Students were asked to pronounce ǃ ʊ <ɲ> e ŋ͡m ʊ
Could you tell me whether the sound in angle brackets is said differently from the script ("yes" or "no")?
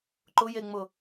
yes